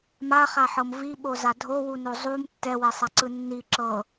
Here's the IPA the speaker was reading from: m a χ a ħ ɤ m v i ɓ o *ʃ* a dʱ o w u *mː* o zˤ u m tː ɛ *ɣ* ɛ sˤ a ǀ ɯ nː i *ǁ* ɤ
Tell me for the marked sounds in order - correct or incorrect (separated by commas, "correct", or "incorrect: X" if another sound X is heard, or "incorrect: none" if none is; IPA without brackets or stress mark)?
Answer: incorrect: z, incorrect: n, incorrect: w, correct